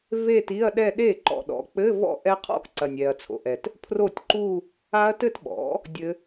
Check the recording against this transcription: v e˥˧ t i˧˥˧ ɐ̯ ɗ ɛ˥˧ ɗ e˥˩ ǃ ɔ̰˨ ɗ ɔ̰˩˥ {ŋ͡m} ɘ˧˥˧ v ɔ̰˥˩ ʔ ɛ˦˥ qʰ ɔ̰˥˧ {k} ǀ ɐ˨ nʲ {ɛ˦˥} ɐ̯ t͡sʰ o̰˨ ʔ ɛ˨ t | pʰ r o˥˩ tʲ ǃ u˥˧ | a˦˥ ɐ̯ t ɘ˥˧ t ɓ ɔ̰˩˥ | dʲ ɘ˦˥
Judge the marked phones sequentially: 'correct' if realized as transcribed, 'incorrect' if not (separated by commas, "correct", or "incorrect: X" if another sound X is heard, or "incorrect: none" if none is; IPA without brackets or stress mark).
incorrect: k͡p, correct, incorrect: ɛ˨